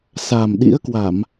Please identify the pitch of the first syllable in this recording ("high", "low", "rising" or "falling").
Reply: low